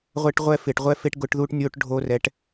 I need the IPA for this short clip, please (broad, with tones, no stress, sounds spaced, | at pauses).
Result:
ʁʷ ɛ˥ ʈ ʁʷ ɛ˥ f ɪ˧˩˧ ʈ ʁʷ ɛ˥ f e˥ ʈ ɡ ʊ˧˥ ʈ ð u˥ ʈ nʲ o˥ ʈ ɖʱ o˥ r ɛ˧˥ ʈ